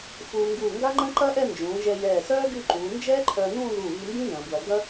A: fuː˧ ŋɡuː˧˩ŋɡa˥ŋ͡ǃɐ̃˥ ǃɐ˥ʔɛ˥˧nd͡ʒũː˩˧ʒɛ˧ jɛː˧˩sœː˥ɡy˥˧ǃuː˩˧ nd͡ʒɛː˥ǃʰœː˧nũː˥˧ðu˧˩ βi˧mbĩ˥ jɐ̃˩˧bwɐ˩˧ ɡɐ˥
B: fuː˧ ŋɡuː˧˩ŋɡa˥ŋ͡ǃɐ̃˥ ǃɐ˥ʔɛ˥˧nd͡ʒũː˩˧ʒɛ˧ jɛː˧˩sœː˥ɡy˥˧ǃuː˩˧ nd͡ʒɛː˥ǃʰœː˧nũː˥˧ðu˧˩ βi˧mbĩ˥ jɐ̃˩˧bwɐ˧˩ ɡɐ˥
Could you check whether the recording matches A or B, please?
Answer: A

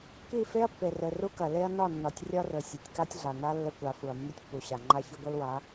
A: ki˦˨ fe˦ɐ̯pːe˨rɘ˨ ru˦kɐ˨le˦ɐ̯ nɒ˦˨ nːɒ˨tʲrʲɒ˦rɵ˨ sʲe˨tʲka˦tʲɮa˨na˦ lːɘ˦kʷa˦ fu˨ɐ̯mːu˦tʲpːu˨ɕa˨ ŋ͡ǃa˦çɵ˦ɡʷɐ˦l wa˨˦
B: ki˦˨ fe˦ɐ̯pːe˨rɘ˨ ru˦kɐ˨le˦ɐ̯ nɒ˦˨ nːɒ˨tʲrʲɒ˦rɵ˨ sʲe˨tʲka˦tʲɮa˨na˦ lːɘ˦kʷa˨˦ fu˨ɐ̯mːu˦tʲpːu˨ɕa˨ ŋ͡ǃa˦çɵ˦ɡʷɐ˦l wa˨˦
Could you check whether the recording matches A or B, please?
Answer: B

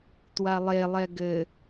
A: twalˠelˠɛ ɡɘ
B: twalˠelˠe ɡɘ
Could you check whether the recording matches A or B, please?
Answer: A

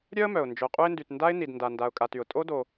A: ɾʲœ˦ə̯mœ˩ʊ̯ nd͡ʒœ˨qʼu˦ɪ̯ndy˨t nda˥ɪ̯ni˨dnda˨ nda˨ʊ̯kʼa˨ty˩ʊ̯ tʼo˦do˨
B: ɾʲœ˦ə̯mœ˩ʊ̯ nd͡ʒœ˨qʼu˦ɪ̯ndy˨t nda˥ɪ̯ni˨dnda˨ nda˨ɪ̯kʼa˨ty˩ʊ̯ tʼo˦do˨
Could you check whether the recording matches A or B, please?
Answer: A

